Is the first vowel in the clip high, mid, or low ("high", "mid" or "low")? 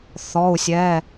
mid